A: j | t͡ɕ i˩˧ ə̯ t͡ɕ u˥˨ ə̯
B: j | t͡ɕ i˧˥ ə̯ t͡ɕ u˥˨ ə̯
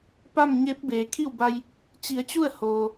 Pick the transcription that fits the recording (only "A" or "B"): A